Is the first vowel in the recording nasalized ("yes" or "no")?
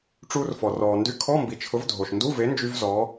no